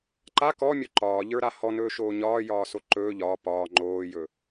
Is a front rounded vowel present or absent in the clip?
absent